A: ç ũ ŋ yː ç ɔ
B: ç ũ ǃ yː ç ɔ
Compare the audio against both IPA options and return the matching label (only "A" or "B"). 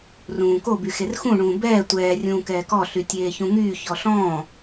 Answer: A